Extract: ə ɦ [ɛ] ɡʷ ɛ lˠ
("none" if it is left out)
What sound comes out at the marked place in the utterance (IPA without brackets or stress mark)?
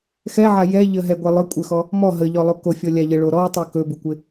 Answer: ɛ